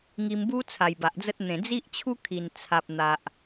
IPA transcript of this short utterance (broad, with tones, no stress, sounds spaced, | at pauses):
ŋ i˧ m b u˦ t͡sʰ a˨˩ j b a˨ ʔ d͡z ə˦ t̚ n̪ ẽ˨˩ d͡z i˦ ʔ t͡ɕʰ u˦ kʰ i˨˩ n t͡sʰ a˨ p̚ n̪ a˨ ʔ